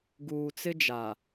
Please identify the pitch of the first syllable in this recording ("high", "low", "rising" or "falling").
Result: low